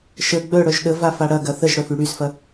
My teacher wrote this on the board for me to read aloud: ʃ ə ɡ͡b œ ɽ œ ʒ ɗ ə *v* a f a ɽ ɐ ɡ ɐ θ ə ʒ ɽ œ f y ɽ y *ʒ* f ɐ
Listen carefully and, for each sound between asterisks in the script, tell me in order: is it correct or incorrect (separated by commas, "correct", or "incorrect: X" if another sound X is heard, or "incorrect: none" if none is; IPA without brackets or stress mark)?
correct, incorrect: z